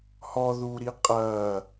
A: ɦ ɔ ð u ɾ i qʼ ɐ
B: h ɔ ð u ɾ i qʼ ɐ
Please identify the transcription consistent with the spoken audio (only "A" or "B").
B